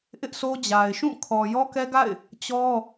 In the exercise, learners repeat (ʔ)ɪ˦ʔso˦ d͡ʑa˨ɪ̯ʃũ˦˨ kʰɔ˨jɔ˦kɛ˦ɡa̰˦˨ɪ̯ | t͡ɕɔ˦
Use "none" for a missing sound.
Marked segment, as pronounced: ʔ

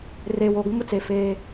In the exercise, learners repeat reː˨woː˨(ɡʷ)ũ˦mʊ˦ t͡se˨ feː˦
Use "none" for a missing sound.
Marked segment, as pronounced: ɡʷ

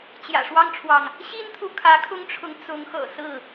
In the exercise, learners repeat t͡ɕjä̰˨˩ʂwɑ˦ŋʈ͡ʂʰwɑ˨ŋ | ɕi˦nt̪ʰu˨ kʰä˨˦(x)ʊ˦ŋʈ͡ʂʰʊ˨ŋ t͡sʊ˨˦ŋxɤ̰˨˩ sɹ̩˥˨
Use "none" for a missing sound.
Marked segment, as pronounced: kʰ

